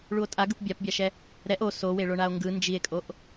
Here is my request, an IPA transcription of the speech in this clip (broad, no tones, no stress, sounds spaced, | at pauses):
ɭ u o̯ tʼ a ɡ ɯ p bʲ a p bʲ a ʃ ɛ | ɾ ɛ ʔ o s o w e ɭ o ɳ a o̯ ŋ ɡ ɯ n d͡ʒ i e̯ kʼ o ʔ